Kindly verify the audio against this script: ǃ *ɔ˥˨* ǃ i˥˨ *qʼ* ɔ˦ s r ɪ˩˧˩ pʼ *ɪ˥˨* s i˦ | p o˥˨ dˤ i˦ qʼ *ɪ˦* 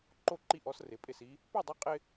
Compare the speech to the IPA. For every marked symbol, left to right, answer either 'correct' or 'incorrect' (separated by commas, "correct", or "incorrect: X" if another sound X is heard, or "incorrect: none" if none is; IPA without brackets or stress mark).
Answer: incorrect: o˥˨, incorrect: ʔ, correct, correct